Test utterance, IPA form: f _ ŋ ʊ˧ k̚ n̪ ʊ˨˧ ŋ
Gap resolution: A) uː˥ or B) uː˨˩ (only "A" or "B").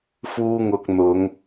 A